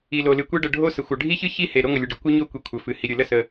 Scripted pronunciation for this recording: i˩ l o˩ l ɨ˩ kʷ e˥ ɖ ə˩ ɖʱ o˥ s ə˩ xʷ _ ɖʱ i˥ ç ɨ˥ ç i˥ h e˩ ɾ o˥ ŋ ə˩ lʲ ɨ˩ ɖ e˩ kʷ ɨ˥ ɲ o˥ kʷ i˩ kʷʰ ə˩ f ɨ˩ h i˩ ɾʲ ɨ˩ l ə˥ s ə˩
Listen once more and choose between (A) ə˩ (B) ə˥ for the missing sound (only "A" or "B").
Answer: A